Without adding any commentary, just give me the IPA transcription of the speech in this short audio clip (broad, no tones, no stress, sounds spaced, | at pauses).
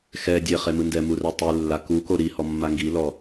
x ɛ dʲ e χ e m ɯ n d ɛ m u r ɛ tˤ i lː a k u k o ɾ i h ɔ mː a ŋ ɡ i l ɔ